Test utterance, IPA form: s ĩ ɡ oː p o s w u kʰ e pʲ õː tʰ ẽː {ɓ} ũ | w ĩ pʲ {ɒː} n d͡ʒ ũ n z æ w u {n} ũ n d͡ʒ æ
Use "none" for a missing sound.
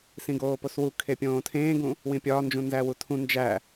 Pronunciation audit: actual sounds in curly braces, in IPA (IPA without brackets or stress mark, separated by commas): ɡ, ɒː, tʰ